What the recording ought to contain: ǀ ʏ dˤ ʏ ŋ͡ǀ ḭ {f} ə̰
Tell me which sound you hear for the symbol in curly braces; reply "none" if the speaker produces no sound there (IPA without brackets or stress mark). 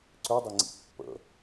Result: pː